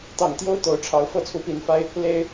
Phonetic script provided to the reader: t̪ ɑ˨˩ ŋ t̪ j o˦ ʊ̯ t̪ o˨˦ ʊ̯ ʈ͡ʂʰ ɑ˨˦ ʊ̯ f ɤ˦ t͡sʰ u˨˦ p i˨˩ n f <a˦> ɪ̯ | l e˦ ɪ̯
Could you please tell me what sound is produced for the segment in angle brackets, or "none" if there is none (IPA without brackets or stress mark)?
a˦